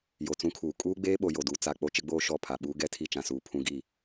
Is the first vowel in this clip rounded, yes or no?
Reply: yes